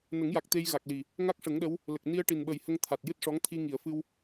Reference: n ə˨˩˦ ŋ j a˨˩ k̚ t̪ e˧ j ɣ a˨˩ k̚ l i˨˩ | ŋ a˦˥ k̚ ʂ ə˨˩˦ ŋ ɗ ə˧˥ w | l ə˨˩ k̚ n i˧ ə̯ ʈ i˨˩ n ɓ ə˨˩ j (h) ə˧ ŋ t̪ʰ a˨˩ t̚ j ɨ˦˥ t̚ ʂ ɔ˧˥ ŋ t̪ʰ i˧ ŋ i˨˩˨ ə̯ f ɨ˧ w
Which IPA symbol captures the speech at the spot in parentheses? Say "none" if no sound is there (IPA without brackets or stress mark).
h